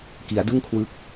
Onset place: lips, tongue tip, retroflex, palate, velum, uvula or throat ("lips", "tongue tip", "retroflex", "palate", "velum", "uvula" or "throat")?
velum